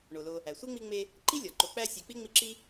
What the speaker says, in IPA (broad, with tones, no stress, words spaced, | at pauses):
ɳo˩lo˨ | æ˩sʷi˥ŋ͡mi˦ŋ͡me˦ | ǃi˥lʲɒ˩ ǃo˨k͡pæ˦sʲe˨k͡pi˥ ŋ͡mi˦ǁi˥